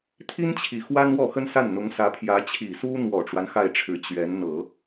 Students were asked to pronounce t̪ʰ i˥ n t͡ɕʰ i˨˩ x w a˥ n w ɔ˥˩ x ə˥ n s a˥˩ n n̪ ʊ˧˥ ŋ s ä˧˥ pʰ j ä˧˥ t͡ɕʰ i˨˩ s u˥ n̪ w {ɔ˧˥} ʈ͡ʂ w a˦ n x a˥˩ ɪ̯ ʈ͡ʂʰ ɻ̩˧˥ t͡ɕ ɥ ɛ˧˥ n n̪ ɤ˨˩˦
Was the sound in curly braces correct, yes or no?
no